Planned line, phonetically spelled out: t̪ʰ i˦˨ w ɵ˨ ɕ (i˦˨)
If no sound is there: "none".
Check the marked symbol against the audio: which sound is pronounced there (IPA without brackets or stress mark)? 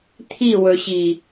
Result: i˨